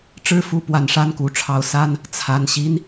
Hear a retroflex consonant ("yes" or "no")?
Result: yes